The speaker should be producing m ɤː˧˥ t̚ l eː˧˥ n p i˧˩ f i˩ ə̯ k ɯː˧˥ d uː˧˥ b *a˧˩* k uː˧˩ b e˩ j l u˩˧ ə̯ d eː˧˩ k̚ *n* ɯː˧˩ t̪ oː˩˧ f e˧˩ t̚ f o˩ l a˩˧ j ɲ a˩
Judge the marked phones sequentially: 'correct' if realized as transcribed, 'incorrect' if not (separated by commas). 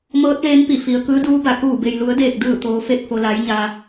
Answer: correct, incorrect